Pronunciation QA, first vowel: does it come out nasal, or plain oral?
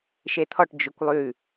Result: oral